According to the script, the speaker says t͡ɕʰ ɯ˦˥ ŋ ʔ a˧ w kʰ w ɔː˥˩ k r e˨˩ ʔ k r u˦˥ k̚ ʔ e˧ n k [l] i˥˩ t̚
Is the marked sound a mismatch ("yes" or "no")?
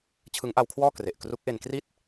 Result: yes